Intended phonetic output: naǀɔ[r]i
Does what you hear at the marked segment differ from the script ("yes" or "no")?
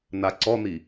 yes